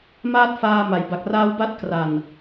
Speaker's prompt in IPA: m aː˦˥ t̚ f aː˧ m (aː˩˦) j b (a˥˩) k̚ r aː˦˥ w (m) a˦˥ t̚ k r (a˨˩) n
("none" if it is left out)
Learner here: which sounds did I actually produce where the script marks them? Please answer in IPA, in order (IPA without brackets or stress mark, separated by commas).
a˩˦, a˨˩, b, a˨˩